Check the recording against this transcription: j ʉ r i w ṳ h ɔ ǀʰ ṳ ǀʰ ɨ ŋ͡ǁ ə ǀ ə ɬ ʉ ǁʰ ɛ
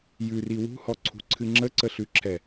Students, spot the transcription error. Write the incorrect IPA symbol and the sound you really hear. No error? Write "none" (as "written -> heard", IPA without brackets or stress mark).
none